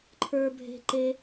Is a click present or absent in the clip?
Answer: present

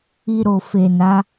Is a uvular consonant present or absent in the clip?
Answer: absent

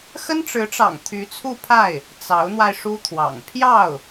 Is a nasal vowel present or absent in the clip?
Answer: absent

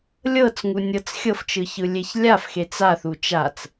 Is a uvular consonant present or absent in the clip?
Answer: absent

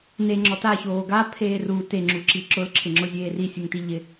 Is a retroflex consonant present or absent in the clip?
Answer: absent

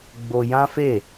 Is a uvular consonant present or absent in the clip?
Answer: absent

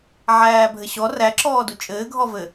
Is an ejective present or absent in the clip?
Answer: present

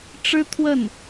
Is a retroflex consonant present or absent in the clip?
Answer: present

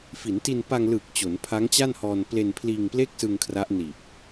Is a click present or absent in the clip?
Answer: absent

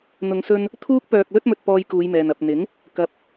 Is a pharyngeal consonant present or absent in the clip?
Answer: absent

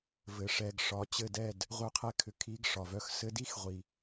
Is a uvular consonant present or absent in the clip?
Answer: present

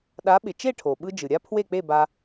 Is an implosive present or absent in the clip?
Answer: present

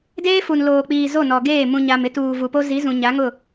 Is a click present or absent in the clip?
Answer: absent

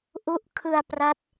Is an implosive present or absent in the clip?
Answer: absent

